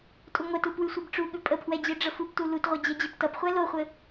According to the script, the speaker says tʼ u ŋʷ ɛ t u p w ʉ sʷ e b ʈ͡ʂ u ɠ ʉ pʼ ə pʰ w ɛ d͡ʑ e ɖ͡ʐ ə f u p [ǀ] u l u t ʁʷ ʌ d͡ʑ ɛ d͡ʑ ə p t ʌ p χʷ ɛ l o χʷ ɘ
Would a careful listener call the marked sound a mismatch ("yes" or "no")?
yes